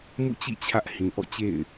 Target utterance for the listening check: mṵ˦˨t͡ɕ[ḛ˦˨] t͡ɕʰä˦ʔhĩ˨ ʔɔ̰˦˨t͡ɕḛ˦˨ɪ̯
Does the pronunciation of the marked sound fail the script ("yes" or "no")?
yes